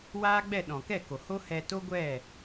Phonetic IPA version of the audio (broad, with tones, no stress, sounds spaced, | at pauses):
w aː˦ ɡ͡b ɛ˦˨ ɗ ɔ̃˨ k ɛ˦˨ k o˨ h o˦ h ɛ˧ t o˦ ɡʷ ɛ˦˨